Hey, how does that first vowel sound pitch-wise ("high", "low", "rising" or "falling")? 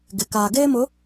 low